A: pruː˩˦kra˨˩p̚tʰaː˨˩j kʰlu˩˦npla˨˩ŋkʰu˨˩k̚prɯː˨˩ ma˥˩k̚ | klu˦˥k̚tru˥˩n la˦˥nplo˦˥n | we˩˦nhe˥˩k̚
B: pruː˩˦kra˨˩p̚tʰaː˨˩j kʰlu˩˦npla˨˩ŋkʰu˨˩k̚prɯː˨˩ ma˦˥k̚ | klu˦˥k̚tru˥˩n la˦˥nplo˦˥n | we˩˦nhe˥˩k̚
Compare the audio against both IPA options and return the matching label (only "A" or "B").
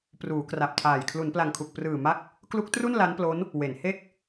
B